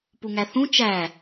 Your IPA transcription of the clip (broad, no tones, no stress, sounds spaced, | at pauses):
p u ŋ æ θ ũ t͡ʃ æ